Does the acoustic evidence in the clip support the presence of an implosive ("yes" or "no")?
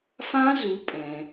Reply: no